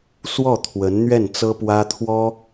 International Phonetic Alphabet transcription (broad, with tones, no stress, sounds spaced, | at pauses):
s w ɔ˥˩ t̪ʰ w ə˧˥ n n̪ ɥ ɛ˥˩ n t͡s ɤ˥ p w ä˥ t̪ʰ w ɔ˥